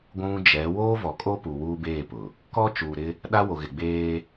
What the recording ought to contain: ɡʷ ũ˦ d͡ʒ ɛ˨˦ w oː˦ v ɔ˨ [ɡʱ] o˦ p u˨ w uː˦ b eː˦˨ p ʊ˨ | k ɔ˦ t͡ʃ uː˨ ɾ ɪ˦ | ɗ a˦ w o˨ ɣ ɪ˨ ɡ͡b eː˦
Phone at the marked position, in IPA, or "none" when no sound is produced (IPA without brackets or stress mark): kʼ